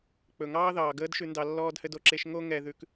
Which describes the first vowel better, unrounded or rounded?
rounded